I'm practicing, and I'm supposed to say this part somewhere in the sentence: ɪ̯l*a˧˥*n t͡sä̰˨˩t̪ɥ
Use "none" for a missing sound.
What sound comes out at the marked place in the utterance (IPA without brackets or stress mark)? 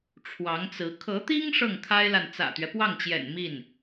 a˨